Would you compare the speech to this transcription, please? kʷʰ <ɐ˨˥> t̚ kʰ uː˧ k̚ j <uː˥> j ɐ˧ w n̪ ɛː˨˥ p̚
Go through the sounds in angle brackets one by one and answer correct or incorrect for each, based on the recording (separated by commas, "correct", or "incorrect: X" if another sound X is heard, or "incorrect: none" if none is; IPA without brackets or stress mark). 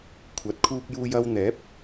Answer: correct, incorrect: uː˧